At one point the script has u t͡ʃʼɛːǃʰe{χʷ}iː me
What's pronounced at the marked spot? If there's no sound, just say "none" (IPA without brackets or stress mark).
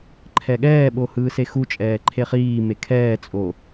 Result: χ